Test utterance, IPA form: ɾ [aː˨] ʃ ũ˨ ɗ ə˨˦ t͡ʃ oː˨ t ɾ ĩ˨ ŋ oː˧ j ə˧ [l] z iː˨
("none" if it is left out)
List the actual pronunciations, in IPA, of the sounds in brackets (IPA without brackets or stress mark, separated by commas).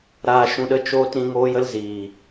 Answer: aː˨, l